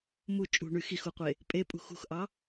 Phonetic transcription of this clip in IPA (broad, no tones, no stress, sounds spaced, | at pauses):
m u t͡ʃʼ ṳ ɳ y x i x u qʷ e | pʼ e pʼ ṳ x ṳ x ʔ ɑ